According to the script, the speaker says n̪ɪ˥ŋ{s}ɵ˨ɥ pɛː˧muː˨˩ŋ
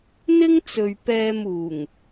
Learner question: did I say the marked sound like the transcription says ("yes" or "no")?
no